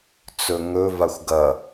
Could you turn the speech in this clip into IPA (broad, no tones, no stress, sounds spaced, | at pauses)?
t͡s ɵ ŋ ɵ v a xʷ ɡ ɐ